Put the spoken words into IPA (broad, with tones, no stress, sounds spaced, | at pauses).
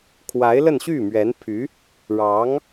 kʰ w a˧˥ ɪ̯ l ə˥˧ n ɕ y˥˩ m ɥ ɛ˧˥ n pʰ y˧˥ | ɻ ɑ˧˥ ŋ